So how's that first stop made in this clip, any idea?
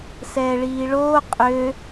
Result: ejective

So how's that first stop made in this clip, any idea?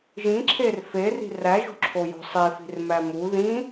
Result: click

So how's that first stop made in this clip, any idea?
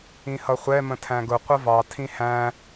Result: aspirated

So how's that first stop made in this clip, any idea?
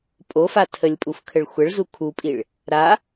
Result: ejective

